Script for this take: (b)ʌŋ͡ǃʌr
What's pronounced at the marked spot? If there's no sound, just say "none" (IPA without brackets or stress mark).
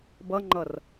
b